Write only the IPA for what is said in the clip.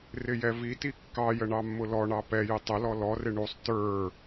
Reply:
rɪjɛviti kːɑjə ɳɑmːʊlɔɳɑ pɛjɪ tˤəlɔ lɔrɪ ɳusˤ tə˞

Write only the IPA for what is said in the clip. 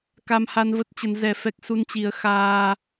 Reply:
ka˧mha˧nvə˦˥t̚ t͡ɕə˨˦nzɛ˧fɛ˦˥k̚ su˧nt͡ɕi˨˦ə̯ xaː˧

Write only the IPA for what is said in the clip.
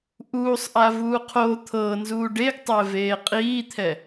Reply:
ʔuːsˤʔa vuːqʰo t̪ʰɤːnzuː ɖeɡtˤɛ veːqʼiːt̪ʰɛ

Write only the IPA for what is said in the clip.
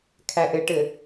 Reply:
kʰæʔɘʈɘ

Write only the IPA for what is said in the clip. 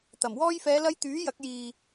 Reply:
t̪ɐ˨˩m wɔː˧jfɛː˨˧lɐ˧j t̪yː˨˥jɐ˨˥k̚jiː˨

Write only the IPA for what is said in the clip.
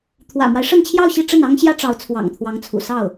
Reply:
t̪ʰwä̰˨˩mwa˦ɪ̯ʂə˥˧nt͡ɕʰjɑ˥˧ʊ̯ ɕi˥˧ʈ͡ʂə˥˩nɑ˥ŋ ɕjä˥ʈ͡ʂɑ˧˥ʊ̯ t͡sʰwɑ̰˨˩ŋt̪ʰwɑ˧˥ŋt͡sʰṵ˨˩ sɑ˥˩ʊ̯

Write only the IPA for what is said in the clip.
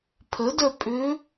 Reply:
pʰədœ pʼʏ

